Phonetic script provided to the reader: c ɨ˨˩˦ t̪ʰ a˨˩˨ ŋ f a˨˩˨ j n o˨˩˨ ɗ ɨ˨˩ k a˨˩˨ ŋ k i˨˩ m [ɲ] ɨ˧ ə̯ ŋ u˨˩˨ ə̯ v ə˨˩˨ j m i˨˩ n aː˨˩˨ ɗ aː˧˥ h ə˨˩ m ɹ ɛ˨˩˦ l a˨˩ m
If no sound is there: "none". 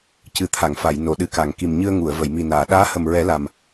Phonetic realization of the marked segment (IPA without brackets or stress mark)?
ɲ